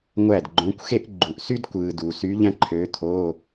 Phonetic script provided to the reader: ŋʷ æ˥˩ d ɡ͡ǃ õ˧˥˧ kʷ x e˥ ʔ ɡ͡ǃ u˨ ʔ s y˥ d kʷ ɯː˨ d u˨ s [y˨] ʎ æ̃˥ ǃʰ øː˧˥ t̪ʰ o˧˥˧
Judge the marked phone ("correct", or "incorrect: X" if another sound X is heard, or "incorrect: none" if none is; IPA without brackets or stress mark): incorrect: y˧˥